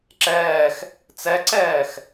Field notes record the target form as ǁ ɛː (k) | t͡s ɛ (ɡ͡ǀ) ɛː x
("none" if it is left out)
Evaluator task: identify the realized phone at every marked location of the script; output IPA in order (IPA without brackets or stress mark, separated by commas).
x, ǀ